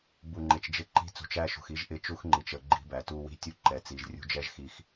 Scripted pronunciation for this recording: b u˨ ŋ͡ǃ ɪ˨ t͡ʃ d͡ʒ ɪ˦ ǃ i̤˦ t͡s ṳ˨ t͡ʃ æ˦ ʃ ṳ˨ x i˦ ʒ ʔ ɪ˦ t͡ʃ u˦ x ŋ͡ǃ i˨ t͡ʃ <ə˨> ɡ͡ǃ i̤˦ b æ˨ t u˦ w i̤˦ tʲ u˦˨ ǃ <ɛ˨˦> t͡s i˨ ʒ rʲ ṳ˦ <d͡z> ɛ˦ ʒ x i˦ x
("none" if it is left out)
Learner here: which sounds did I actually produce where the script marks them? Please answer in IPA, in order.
ə˨, ɛ˨, d͡ʒ

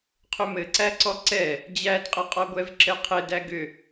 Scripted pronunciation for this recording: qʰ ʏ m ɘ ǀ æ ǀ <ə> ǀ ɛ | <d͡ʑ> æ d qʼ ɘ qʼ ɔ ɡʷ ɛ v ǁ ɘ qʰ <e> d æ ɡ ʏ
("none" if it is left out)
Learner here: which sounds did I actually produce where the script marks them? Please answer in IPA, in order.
ɔ, d͡ʑ, ɘ

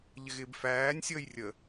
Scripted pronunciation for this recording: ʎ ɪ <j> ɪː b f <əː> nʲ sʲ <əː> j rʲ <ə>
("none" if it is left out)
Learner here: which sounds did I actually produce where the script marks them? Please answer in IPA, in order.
ɣ, æː, əː, ə

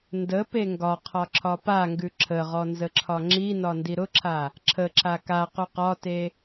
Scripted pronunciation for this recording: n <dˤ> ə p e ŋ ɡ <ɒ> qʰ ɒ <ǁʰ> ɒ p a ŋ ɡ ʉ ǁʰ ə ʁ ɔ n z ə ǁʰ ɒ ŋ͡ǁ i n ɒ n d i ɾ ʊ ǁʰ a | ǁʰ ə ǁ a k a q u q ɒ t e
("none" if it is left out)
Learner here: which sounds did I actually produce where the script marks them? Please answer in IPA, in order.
d, ɒ, ǁʰ

